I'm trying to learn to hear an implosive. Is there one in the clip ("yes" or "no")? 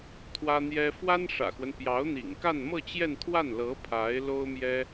no